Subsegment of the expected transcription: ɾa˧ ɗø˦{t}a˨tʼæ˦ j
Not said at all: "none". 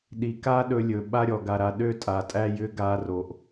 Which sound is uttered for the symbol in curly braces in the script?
tʼ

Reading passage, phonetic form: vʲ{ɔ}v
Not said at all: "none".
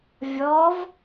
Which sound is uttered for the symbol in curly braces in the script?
ɔ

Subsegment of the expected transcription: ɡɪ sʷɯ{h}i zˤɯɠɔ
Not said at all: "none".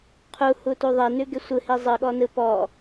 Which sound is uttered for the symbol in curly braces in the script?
h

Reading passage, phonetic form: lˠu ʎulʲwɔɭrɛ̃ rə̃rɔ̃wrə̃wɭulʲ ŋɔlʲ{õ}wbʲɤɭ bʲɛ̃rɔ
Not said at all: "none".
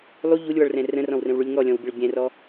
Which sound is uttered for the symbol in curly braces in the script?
ɔ̃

